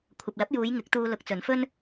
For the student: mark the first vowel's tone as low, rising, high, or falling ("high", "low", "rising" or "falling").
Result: low